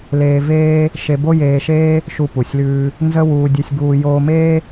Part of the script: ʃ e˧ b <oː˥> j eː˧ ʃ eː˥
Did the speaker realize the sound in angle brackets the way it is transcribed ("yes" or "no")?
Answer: no